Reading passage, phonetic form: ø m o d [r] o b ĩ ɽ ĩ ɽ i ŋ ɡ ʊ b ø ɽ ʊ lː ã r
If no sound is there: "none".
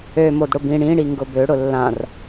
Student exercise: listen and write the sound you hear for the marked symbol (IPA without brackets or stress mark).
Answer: ɽ